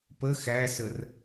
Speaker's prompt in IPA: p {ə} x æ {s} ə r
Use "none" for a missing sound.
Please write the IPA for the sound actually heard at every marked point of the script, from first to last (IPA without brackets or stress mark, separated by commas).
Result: ə, s